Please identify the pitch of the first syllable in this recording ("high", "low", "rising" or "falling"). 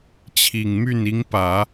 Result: low